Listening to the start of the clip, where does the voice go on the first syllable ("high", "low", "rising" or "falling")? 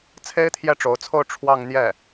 high